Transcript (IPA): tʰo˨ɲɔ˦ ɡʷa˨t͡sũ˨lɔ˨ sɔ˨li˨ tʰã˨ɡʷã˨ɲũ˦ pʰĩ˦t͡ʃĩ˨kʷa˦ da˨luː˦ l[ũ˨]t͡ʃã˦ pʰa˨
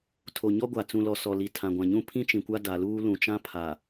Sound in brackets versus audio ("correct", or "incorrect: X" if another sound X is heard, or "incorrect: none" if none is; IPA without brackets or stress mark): correct